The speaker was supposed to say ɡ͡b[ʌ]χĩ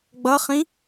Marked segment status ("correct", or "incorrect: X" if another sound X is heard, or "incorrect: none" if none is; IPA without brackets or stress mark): correct